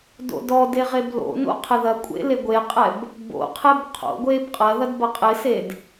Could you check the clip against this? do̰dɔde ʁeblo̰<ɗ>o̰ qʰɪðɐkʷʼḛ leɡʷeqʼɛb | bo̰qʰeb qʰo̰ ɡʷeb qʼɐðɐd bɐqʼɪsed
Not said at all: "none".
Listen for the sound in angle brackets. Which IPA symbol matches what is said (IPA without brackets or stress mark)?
n